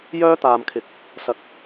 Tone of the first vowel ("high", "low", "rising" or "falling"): high